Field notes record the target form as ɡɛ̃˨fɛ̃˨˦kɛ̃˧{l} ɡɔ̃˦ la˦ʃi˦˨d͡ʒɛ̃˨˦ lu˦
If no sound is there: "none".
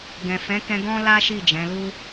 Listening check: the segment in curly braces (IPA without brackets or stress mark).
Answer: none